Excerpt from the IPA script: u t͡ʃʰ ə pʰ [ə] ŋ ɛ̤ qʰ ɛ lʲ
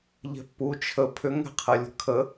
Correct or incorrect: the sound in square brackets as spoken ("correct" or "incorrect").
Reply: incorrect